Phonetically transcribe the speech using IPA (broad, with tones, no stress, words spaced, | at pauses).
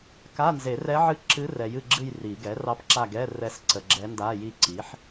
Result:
ka˧˥˧nze˨˩˦rɛ˧˥ʕɨ˦˨ ǁɨ˧˥rɛ˨jɨ˦˨ɡ͡ǁɨ˦˨j ri˨˩˦ ɡɛ˩˥rɑ˧˥pǁa˦˨ɡɛ˧˥˧ rɛ˧˥sǀə˨ɡ͡ǁɛ˧˥nda˧˥˧ ji˦˨ ǀi˩˥ħ